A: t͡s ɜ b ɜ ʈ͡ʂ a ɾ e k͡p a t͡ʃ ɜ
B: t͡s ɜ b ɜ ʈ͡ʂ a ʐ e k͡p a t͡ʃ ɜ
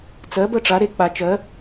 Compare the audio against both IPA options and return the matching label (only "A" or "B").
A